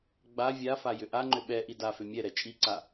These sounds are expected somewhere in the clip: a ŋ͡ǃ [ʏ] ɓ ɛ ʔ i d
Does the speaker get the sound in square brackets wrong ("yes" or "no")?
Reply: no